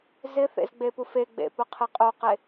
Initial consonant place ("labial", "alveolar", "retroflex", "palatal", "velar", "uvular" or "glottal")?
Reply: alveolar